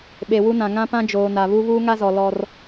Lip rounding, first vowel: unrounded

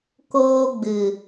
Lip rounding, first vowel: rounded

